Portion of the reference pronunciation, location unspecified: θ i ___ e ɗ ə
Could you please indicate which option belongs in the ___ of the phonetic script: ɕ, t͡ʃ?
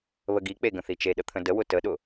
t͡ʃ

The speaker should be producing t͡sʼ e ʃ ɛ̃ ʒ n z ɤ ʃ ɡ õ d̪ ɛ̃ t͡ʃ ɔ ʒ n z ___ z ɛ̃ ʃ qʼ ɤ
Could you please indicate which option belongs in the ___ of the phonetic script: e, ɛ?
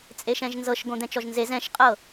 e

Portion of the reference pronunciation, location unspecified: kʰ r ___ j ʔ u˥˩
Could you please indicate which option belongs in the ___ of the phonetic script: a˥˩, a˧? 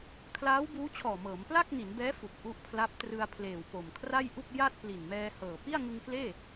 a˥˩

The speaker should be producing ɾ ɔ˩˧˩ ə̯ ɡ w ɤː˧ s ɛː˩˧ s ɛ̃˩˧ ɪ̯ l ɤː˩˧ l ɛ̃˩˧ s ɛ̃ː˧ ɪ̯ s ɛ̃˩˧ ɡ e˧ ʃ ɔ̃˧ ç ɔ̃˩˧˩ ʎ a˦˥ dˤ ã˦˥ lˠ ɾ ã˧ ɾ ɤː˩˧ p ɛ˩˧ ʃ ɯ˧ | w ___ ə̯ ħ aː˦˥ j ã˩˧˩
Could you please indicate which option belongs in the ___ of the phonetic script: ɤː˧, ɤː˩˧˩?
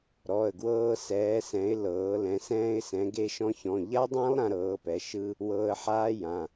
ɤː˧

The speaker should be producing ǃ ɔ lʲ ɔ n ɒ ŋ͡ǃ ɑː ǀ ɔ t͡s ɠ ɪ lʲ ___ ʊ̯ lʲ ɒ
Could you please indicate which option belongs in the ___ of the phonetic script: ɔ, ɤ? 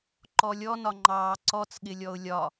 ɔ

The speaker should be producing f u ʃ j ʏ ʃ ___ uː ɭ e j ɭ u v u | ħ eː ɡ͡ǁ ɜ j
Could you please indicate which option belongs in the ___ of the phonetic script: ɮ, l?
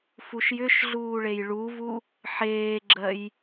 ɮ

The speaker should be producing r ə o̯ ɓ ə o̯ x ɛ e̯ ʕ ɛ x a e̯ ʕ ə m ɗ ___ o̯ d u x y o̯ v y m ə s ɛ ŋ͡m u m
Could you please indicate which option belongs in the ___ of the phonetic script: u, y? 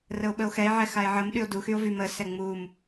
y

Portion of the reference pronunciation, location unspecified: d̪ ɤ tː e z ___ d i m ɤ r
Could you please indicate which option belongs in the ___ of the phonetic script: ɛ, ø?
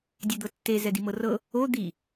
ɛ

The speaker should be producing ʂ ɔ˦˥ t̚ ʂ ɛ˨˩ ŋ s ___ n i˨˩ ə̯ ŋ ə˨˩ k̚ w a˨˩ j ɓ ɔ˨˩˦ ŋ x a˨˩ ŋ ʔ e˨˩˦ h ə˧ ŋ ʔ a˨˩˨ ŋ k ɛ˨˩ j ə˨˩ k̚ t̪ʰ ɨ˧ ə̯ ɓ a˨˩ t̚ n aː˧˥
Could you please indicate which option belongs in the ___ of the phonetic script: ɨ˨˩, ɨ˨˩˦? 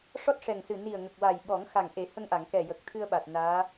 ɨ˨˩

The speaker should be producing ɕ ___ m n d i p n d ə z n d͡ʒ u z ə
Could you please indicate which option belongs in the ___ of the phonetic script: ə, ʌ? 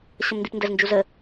ə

